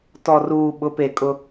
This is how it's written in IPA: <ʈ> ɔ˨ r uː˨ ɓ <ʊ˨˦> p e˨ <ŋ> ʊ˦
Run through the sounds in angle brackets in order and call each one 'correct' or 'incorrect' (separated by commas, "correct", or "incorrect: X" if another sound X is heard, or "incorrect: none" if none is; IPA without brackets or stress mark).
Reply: incorrect: t, correct, incorrect: kʼ